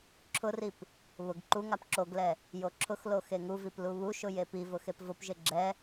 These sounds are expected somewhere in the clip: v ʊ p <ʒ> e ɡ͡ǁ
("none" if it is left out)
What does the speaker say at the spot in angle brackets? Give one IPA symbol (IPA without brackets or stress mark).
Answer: ʒ